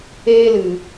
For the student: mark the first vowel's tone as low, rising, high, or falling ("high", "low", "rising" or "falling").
high